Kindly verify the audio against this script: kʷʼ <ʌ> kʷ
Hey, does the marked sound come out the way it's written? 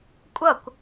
yes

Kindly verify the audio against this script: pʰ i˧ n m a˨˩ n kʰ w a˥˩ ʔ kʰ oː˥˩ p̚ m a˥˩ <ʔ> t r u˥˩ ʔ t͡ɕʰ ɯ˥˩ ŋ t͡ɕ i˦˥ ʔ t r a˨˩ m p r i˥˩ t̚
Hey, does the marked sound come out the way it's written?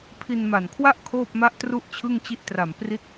yes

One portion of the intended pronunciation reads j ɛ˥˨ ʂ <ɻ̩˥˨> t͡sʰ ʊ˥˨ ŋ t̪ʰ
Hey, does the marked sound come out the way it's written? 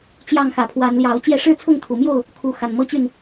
yes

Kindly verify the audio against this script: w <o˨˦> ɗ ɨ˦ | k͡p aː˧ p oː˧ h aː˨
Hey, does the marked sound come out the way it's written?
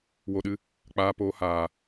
no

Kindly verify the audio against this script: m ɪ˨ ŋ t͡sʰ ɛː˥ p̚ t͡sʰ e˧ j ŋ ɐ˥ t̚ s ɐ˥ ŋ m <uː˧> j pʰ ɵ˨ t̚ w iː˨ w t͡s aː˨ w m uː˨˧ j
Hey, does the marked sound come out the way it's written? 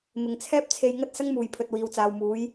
no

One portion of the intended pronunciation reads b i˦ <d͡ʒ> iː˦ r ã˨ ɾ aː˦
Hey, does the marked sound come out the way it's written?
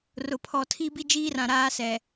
yes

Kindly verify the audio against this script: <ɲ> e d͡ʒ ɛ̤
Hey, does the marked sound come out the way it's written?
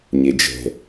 yes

